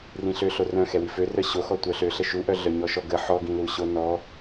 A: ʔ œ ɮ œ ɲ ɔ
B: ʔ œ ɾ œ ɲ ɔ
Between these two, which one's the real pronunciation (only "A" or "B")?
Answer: A